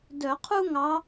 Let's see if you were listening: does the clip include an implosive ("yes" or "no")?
no